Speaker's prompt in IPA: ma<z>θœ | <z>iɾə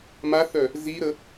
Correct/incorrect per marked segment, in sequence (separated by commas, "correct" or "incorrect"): incorrect, correct